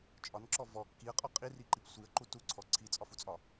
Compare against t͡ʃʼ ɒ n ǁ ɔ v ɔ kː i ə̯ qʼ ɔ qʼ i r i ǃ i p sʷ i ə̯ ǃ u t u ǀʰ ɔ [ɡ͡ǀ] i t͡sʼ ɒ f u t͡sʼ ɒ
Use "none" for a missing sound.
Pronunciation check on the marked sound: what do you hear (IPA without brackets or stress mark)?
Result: ǀʰ